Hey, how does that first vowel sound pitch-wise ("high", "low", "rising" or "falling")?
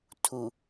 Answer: low